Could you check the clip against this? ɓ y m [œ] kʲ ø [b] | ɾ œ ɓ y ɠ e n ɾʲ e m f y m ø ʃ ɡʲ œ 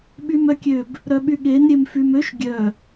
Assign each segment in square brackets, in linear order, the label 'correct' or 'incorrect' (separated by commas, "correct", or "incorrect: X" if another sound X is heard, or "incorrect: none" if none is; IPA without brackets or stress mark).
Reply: correct, correct